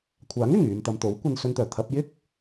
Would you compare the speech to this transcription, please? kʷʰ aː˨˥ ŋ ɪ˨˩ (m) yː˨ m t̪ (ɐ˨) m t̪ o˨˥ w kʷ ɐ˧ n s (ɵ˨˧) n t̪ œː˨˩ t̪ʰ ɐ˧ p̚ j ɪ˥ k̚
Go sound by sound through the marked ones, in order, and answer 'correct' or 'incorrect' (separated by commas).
incorrect, correct, incorrect